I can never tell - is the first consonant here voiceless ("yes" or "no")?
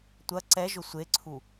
yes